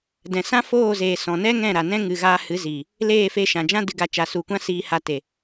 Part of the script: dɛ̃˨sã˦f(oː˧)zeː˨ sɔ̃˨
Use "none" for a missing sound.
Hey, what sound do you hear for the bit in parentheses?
oː˦˨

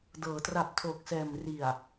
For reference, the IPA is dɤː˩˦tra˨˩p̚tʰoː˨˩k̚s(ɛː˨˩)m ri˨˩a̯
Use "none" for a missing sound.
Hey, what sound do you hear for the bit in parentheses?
ɛː˨˩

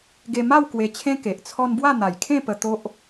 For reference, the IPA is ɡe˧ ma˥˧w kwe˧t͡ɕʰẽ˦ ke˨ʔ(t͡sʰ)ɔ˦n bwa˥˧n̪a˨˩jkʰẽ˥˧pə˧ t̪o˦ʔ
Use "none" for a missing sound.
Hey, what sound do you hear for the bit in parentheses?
t͡sʰ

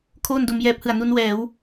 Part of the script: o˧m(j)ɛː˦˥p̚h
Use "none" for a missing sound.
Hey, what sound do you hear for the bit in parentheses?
j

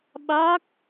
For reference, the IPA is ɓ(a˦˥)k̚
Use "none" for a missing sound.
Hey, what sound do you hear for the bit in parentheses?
a˦˥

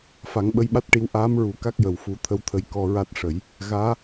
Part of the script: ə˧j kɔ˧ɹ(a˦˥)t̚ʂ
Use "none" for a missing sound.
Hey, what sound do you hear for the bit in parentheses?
a˦˥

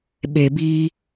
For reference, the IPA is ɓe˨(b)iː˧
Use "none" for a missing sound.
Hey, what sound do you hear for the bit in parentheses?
b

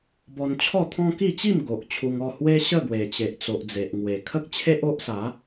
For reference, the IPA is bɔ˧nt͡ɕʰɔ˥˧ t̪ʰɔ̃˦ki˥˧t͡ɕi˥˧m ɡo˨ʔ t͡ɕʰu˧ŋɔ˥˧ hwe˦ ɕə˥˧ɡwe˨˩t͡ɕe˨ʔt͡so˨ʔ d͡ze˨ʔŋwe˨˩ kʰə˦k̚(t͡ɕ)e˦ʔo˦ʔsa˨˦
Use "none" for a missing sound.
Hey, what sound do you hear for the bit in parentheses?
t͡ɕʰ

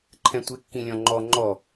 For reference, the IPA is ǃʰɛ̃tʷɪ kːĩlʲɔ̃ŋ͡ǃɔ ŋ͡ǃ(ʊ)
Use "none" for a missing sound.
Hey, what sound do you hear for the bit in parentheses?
ɔ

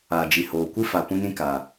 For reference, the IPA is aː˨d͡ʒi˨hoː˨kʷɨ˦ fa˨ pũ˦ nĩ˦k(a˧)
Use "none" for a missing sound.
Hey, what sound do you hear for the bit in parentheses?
a˨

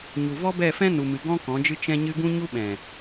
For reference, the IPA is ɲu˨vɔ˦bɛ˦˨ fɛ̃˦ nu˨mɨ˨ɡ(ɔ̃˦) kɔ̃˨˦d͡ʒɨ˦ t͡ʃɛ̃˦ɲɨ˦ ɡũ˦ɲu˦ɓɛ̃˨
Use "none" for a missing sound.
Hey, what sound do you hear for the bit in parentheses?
ɔ̃˦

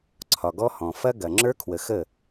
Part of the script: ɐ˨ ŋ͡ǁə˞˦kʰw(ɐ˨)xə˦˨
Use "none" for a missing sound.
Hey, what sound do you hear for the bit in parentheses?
ə˨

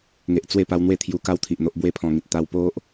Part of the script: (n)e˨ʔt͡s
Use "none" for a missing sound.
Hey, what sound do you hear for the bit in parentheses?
ŋ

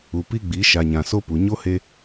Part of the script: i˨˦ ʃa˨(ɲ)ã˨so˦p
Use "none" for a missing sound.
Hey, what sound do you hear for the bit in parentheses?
ɲ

